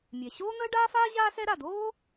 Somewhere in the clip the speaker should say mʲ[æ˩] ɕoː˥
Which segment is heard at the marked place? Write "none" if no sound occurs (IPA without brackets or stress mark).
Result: ɛ˩